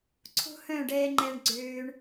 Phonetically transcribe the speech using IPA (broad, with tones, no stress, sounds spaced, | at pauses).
ǀʰ o̤˦ h œ̃˦˨ ɖ ɛː˧ ŋ͡ǃ ɛ˧ ɳ ɡ͡ǀ øː˧ ɳ